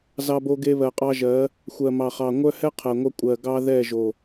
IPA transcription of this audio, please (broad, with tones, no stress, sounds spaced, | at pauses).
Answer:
z ɑ˦ b o˦ ɡ e˦ β ɜ˨ qʼ ɑ˦ ʒ ɜ˨˦ | xʷ ɜ˨ m ɑ˨ χ ɑ˨ ŋʷ œ˦ h ɛ˦ qʰ ɜ˨ ŋʷ œ˦ kʷʼ ɜ˨ ɡ ɑ˦ ð ɛ˦˨ ʒ o˨